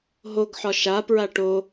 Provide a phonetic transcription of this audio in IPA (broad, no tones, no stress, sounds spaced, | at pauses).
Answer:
ɦ o ɡ ħ ɒ ʃ a p ɹ a ʈ o